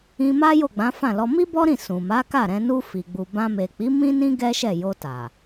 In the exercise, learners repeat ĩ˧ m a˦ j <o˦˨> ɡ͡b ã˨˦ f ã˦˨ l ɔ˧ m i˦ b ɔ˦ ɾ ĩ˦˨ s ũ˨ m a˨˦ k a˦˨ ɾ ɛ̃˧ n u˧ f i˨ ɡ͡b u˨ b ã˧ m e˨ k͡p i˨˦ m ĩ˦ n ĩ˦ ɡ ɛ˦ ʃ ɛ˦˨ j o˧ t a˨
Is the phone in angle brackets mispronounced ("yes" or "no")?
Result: no